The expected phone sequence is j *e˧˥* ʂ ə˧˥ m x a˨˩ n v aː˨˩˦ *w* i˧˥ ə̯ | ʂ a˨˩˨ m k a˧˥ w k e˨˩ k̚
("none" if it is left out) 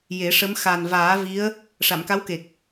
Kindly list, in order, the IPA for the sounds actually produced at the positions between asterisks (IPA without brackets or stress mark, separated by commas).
e˨˩˦, v